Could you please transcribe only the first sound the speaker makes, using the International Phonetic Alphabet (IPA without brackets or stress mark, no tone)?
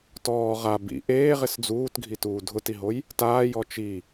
t